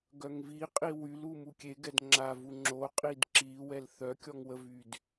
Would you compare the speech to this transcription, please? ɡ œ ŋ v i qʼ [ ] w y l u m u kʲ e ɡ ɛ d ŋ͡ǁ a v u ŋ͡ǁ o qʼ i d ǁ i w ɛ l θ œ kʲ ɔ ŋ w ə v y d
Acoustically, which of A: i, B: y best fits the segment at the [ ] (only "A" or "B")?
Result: A